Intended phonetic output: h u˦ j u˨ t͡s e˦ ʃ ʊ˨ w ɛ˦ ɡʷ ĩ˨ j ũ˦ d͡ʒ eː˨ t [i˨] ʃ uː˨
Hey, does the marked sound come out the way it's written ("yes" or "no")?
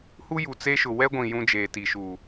yes